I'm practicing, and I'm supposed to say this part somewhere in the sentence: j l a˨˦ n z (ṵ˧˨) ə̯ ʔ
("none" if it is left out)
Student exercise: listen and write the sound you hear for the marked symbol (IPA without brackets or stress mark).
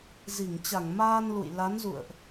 ṵ˧˨